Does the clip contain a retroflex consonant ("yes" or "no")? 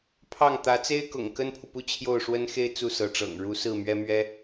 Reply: yes